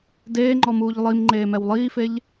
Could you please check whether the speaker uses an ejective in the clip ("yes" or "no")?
no